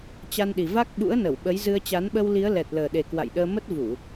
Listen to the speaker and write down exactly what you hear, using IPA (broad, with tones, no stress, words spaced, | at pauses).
t͡ɕa˧nɗi˨˩va˦˥k̚ ɓṵ˧˥ə̯nə˧˩wɓə˨˦j zɨ˧ə̯t͡ɕa˨˦n ɓə˧wli˨˦ə̯ lɛ˨˩t̚ləː˨˩ɗe˨˩ kwa̰˧˨jɗəː˧mə˦˥t̚ vu˧˩˨